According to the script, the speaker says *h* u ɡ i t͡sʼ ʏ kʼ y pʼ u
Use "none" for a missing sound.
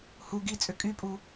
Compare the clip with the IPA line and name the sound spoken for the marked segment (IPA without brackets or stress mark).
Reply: h